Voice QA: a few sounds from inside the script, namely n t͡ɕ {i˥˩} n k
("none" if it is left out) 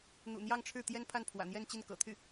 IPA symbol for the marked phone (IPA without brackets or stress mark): i˥˩